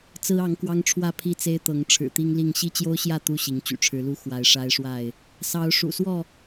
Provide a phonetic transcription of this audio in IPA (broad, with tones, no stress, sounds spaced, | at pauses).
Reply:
t͡s ɹ̩˦ ɑ˨˦ ŋ k w ɑ˦ ŋ ʈ͡ʂʰ w ä˥˨ pʰ i˥˨ t͡s e˦ ɪ̯ t̪ ɤ˨˦ ŋ ʈ͡ʂʰ ɻ̩˨˩ t̪ i˦ ŋ l i˥˨ ŋ ɕ i˦ t͡ɕ j o˦ ʊ̯ ɕ j ä˥˨ t̪ u˥˨ ɕ i˨˦ ŋ t͡ɕ y̰˨˩ ʈ͡ʂʰ ɻ̩˨˦ l u˦ x w a˨˦ ɪ̯ ʂ a˦ ɪ̯ ʂ w a˥˨ ɪ̯ | s ɑ˨˦ ʊ̯ ʂ ṵ˨˩ s w ɔ˥˨